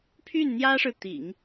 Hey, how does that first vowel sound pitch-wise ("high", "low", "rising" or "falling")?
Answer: falling